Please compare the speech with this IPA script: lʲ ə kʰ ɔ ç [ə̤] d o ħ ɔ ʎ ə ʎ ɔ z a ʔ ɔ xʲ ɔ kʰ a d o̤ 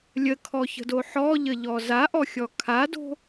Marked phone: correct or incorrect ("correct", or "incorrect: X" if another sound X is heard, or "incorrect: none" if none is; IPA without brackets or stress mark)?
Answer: correct